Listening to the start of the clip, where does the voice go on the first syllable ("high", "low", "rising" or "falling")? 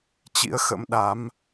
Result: rising